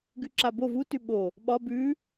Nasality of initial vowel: oral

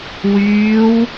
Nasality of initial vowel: oral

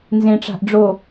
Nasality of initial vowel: nasal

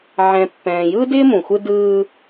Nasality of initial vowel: nasal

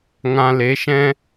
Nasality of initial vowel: nasal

